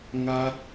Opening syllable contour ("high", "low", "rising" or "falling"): high